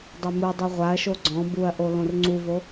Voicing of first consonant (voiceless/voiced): voiced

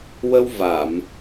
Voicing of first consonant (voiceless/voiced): voiced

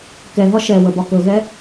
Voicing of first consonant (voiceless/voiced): voiceless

